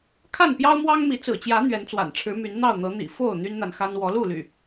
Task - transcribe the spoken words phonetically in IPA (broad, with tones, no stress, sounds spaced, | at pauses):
kʰ a˥˨ n p j ɑ˦ ʊ̯ m w ɑ˦ ŋ m i˨˦ t͡s ɹ̩˨˩ t͡ɕ j ä˨˦ n̪ ɥ ɛ˨˦ n t͡s w a̰˨˩ n ʈ͡ʂʰ ɻ̩˨˦ m y˨˦ n n̪ ɑ˥˨ ʊ̯ n̪ ɤ˨˦ n̪ ḭ˨˩ f o˥˨ ʊ̯ n̪ y˦ n n̪ a˨ n x a˦ n w ɔ˨˦ l u˥˨ l y̰˨˩